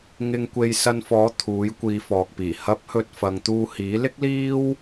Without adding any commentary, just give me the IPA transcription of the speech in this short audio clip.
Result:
ŋ ɪ˨ ŋ kʷ e˨ j s ɐ˧ n f ɔː˨˥ t̪ʰ uː˨˥ j kʷ iː˨˧ f ɔː˨ k̚ p iː˨˩ h ɐ˨˥ p̚ h ɵ˨ t̚ f ɐ˨ ŋ t̪ uː˧ h iː˨˥ l ɪ˥ k̚ l iː˥ w

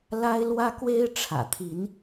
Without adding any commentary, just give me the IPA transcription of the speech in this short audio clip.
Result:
l a˦ ɪ̯ l w ä˦ k w e˦ ɪ̯ ʈ͡ʂʰ ä̰˨˩ t̪ʰ i˨˦ n

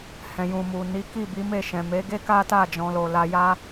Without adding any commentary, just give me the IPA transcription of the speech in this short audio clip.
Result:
h ɛ̃˨ j ũ˨ m u˨ n i˨˦ k i˦˨ b i˨˦ m e˦˨ ʃ ɛ̃˨ m e˨˦ ɡ e˦ k a˦ t a˦˨ d͡ʒ ɔ̃˧ l o˧ l a˧ j a˦

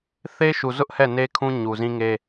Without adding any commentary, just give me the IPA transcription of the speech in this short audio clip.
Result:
θ e˦ ʃ u˨ z ʊ˦ ʔ h ɛ˦˨ n e˦ kʰ ũ˦ ɲ u˨ z ĩ˦ ŋ e˦

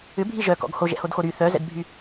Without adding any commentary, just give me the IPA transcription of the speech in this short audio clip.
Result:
ʏ bʱ i ʒ œ k ɔ̰ ɡ h o ʒ ɛ̰ h o d x o ɾ y θ œ z ɛ̰ d bʱ y

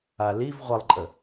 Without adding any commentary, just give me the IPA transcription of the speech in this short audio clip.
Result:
a l i v ʁʷ ə lˠ ǃʼ ə

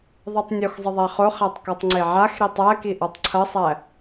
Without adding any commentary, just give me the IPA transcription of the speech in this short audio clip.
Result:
ðˤ e tˤ nʲ o x zˤ ə ðˤ æ χ o χ æ tˤ k ɔ tˤ ŋ͡ǀ e ʕ a x ɾ i tˤ æ k i ʔ ɔ tˤ ǀʰ ɐ sˤ æ

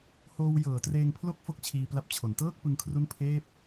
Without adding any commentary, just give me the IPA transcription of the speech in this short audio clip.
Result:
h oː˧ w j ɤː˩˦ t r eː˧ ŋ pʰ l o˥˩ k̚ f o˥˩ k̚ t͡ɕʰ iː˧ p l a˦˥ p̚ t͡ɕʰ o˩˦ n t ɤː˥˩ k̚ p ɯ˧ ŋ kʰ r u˦˥ n pʰ eː˥˩ p̚

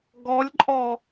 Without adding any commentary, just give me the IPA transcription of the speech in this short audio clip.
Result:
ɡ ɔ lʲ ǃʼ ɔ

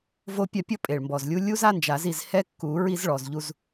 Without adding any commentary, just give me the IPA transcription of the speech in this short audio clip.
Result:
v o˥ pʲ a˦˨ pʲ ɔ˥ pʼ e˨˩ ɭ m b ɔ˨˩ z lʲ u˥ lʲ u˥ z a˥ n d͡ʒ a˨˩˦ z i˦˨ z h ɛ˥ kː u˨˩˦ ɹ i˥ z ɭ ɔ˨˩ z ʎ u˦˨ z

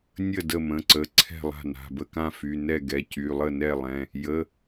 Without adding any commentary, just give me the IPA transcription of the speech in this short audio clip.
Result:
nʲ ə˥˩ d ə˥˩ m ə̃˩˧˩ ǀ ə˩˧˩ ǀʰ ɛ̤˥˩ lˠ a̤˥˩ n a̤˩˧˩ b ə˥˩ k ã˥˩ f y˩˧˩ n ɛ˥˩ ɡ ɛ˩˧˩ c y˩˧˩ lˠ ə˥˩ n ɛ˥˩ lˠ ɛ̃˩˧˩ | j ə˩˧˩

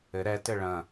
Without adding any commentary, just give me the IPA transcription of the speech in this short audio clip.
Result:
ɘ ɾ ɛ t ɘ ɭ ɐ̃

